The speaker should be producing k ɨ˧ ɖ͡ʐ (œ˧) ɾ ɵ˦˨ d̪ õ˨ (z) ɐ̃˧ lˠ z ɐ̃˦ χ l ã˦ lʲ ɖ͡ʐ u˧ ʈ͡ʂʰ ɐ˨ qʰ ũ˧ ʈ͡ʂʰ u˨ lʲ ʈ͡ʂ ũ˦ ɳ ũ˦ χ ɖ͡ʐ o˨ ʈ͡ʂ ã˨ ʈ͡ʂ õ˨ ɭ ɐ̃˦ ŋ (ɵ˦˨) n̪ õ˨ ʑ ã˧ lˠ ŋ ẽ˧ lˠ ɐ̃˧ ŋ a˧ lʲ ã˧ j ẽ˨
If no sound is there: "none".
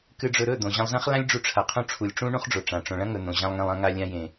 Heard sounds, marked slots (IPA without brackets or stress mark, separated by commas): ɵ˧, ʑ, ɵ˨